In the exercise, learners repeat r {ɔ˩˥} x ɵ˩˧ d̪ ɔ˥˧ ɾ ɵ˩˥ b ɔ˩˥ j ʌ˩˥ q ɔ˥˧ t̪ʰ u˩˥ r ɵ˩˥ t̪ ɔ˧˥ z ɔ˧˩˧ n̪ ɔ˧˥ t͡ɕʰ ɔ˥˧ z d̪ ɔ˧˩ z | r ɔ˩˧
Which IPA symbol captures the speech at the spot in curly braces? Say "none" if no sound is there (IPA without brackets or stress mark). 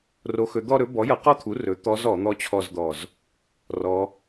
o˩˥